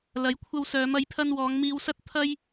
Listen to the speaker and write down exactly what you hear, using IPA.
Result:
l ɐ˨˥ j kʷʰ ɐ˧ w s œː˨˧ m ɐ˨˥ j pʰ ɐ˧ n w ɔː˨˧ ŋ m iː˧ w s ɐ˥ t̚ t̪ʰ ɐ˥ j

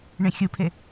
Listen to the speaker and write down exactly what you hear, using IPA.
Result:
ɳ ẽ xʲ u pʰ e

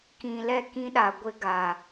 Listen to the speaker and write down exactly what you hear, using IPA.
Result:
k ĩ˨ l ɛ˦˨ k ĩ˦ ɗ a˨ ɡʷ ɪ˦ ɡ a˨

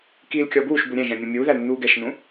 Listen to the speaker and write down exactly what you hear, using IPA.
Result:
k iː l kʲ ɔ b uː ʃ b u ɾʲ ɛ̃ ʒ ɛ̃ mʲ ɛ̃ mʲ uː ð æ l nː uː ɡ ɛ ʃ n ũ

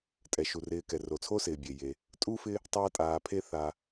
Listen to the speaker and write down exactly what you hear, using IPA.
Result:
tʼ ɛ˩ ʃ u˩ r ɪː˨ k ɛ˩ r o˩ t͡sʰ o˥ s ɪː˩ bʲ e˩ j e˩ | tʼ u˥ f ɪ˦ | tˤ aː˦ tʼ aː˨ pʰ e˦ θ a˨

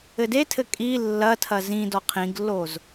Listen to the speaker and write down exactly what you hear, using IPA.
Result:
ɘ d e tʰ ɘ kʼ i lː ɐ tʰ ɐ z ĩ d ɔ qʰ ĩ ɡ lː o z

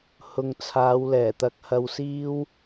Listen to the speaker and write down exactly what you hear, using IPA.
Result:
h ʊ˨ ŋ t͡sʰ aː˨˧ w l ɛː˨˩ t̪ ɐ˨ k̚ h ɐ˧ w s iː˥ w

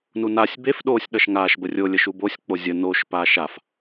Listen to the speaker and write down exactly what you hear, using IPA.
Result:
n u n a sʲ b e f ɗ oː sʲ ɗ ʌ ʃ ŋ aː ʃ b ə rʲ o lʲ ə ʃ u b o sʲ k͡p o zʲ ə n o ʃ p aː ʃ a f

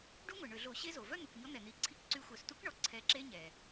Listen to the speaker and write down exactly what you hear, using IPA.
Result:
ɖ u˦˥ ŋʷ e˩ ɳ ø˧˩˧ ɮ o˧˩˧ ɕ e˦˥ z o˩ v œ˥˧ n̪ u˩ k ɲ ɔ˨˥ n̪ ɛ˩ n̪ i˧˩˧ ǀʰ i˥˧ k ǀ y˦˥ xʷ œ˧˩˧ s t u˦˥ k ɳ ɔ˩ ǀʰ ɛ˨˥ ǁ e˦˥ ɲ ɛ˩

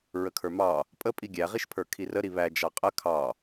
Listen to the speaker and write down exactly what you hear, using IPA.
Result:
ɹ ə kʰ ə˞ m ɑ | pʼ ə pʼ i ɡʲ æ ʁ i ʃ pʰ ə˞ kʰ i r ə ɾ i β æ d͡ʒ ɑ qʼ ə kʰ ɑ

